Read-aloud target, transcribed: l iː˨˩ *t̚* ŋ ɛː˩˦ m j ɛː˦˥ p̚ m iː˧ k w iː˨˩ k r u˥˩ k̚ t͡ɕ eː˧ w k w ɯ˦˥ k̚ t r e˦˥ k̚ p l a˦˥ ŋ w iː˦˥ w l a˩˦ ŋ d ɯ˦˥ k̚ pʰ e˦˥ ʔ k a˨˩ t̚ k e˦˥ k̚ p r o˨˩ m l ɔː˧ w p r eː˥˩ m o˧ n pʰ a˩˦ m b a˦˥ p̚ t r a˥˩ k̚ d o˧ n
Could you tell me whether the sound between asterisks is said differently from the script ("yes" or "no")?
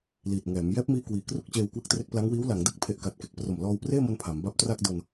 no